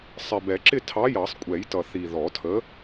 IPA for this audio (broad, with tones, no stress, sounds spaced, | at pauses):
sˤ ɪ˨˩ b ɛ˨˩˦ ǁ ɪ˥˩ tʰ ɑ˨˥ j ɑ˨˩˦ sˤ kʷʼ ɛ˨˩˦ j t ʌ˨˩ θ i˨˩ ð ɔ˨˩˦ tʰ ə˨˥